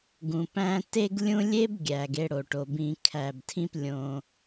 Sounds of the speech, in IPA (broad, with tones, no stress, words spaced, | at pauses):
ɡũ˩pæ̃˧ te˥ɡlʲũ˥ lʲe˥b ɡʲæ˩ɡe˧ɽo˩ʈo˩ bĩ˧ kʰæ˩btʰĩ˥plʲõ˩